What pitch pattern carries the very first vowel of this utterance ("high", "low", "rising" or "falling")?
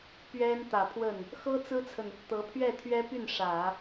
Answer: high